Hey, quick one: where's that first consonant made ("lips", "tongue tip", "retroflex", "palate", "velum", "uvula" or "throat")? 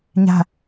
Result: palate